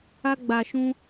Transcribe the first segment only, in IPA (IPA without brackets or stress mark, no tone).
a